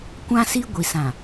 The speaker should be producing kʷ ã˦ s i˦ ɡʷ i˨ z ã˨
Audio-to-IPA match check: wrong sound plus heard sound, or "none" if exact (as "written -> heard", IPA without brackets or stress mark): z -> s